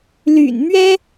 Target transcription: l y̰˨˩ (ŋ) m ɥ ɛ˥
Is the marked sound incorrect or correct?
incorrect